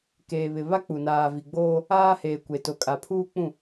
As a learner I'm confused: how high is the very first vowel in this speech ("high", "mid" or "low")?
mid